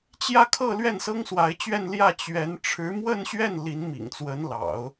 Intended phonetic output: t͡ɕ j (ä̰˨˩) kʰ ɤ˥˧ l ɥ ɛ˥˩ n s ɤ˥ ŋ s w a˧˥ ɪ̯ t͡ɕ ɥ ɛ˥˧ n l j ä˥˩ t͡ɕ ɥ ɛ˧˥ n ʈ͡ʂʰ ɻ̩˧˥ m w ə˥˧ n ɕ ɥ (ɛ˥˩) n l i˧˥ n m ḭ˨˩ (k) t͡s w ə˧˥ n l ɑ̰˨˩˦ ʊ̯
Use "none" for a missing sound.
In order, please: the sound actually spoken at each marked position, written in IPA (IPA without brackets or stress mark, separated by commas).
ä˥˧, ɛ˥˩, ŋ